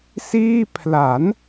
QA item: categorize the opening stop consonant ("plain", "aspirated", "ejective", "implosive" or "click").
aspirated